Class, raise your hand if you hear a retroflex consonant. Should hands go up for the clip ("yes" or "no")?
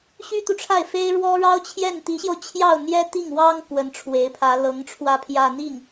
yes